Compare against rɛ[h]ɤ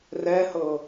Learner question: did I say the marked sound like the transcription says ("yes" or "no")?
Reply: yes